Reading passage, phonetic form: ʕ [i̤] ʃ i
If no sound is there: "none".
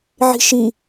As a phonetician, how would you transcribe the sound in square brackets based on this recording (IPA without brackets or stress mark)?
i̤